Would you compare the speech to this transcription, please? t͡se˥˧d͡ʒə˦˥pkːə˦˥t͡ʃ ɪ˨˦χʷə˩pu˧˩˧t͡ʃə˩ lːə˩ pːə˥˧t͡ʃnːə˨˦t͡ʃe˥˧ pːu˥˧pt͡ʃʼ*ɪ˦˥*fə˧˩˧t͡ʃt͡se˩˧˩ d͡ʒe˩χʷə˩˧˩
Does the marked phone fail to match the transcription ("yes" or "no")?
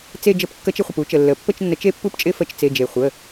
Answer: no